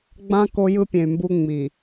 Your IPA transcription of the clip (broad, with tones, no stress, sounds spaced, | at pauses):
ɡ͡b ã˦ k o˦ j ɯ˦ pʲ ẽ˨ y̯ m b u˦ ŋ͡m i˨